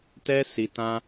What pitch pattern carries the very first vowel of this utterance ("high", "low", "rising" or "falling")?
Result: high